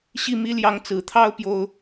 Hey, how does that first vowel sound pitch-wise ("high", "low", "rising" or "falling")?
falling